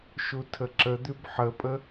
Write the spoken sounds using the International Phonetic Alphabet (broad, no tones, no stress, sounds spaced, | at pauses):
ʃ u tʰ ə ǁ ə d̪ ʉ b ħ ə pʼ ə